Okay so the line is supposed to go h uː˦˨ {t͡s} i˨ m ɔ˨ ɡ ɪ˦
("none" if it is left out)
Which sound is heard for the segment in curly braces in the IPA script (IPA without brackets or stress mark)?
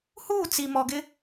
t͡s